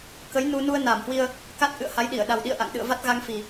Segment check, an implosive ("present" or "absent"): present